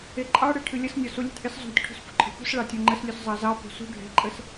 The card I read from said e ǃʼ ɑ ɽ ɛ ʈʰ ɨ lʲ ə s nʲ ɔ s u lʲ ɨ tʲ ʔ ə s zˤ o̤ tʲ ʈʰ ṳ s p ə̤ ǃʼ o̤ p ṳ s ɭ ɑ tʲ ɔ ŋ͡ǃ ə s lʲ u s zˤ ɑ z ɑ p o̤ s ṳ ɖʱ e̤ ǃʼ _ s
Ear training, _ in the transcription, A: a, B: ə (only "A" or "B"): B